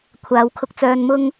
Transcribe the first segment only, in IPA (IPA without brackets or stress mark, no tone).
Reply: kʷʰ